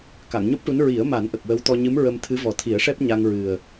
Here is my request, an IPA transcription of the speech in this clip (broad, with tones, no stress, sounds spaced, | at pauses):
k a˨˩˨ ŋ ɲ u˦˥ p̚ ʈ u˧˥ n ɹ i˨˩˦ ə̯ m a˨˩˦ n ʔ ə˨˩ k̚ w ə˧˥ w t̪ ɔ˧ ɲ ɨ˧˥ m ɹ ə˧ m t̪ʰ ɨ˧˥ v ɔ˨˩ t̪ʰ i˨˩˦ ə̯ ʂ ɛ˦˥ p̚ ɲ a˧ ŋ ɹ ɨ˨˩ ə̯